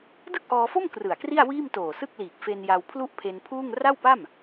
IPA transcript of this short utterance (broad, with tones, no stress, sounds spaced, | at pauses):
d ɯ˥˩ k̚ ʔ ɔː˧ f o˥˩ m k r ɯ˨˩ a̯ k r i˥˩ a̯ w iː˥˩ m t oː˨˩ s ɯ˥˩ k̚ l iː˨˩ k̚ f e˧ n j a˧ w pʰ l u˥˩ ʔ pʰ e˧ n pʰ uː˥˩ ŋ r a˥˩ w p a˥˩ m